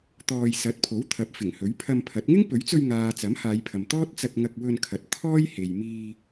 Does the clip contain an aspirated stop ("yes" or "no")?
yes